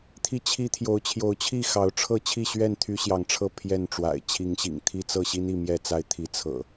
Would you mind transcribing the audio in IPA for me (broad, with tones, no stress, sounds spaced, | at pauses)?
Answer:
t̪ʰ i˦ t͡ɕʰ i˦ t̪ʰ j o˨˦ ʊ̯ t͡ɕʰ j o˨˦ ʊ̯ t͡ɕʰ i˥˨ x ɑ˨˦ ʊ̯ ʈ͡ʂʰ ɤ˥˨ t͡ɕʰ i˥˨ ɕ ɥ ɛ˥˨ n t̪ʰ y˦ ɕ j ɑ˨˦ ŋ ʈ͡ʂʰ ɤ˥˨ pʰ j ɛ˥˨ n ʈ͡ʂ w a̰˨˩ ɪ̯ t͡ɕʰ i˨˦ ŋ ɕ ḭ˨˩ ŋ t̪ʰ i˦ t͡s ɤ˥˨ ɕ i˦ n i˥˨ m j ɛ˥˨ t͡s a˦ ɪ̯ t̪ʰ i˨˦ t͡sʰ ɤ̰˨˩